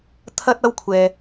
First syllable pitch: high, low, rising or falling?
high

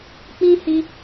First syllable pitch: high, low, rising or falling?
high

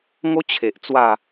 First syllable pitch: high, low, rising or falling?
high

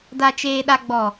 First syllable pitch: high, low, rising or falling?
low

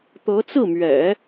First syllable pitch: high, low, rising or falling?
rising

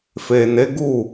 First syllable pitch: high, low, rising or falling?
low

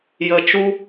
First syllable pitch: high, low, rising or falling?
low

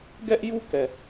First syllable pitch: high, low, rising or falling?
high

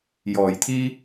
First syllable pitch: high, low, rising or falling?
low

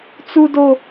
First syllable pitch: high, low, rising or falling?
high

